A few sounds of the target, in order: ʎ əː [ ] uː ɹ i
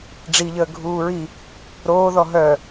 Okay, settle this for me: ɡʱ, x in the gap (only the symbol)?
ɡʱ